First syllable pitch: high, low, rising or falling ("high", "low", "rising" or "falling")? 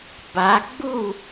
rising